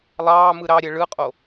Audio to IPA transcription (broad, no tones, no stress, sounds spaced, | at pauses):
lˠ ɑː m ɯ ɾ ɑ ɾʲ ɛ ɭ ɯ qʼ o